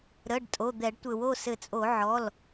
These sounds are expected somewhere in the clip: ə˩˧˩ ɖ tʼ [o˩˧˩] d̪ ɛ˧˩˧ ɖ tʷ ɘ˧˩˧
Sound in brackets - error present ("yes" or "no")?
no